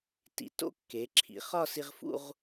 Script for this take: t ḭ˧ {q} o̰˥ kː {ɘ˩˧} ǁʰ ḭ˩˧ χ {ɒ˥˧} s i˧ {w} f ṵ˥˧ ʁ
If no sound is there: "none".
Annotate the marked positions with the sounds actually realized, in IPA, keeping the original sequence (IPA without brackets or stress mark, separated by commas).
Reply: t, e˩˧, ɒ˥˧, ʁ